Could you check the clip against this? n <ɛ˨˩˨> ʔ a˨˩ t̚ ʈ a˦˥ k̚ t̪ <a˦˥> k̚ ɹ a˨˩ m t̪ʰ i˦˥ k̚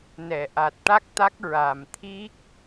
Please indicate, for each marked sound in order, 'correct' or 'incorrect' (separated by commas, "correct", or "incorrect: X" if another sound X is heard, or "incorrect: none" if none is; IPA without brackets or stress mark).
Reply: correct, correct